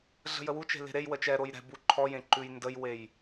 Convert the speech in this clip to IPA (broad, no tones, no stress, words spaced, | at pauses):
ɮə̤jəwut͡ʃe̤ le̤ɾejwə t͡ʃɛɾoj ɾɛ̤ buǃʰɔjẽ ǃʉjndəjwej